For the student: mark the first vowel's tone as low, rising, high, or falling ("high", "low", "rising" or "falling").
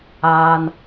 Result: low